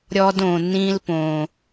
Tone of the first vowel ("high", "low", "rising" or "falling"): low